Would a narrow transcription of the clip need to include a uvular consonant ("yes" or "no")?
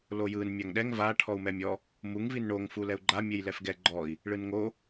no